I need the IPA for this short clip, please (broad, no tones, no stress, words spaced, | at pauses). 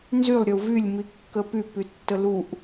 nzylˠ ɾʲəu̯vylʲ mikːəpyp ytːəluʔ